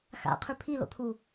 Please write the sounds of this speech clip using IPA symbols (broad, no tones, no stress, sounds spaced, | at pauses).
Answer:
x a̰ qʰ ʉ pʰ i l o̰ t̪ʰ u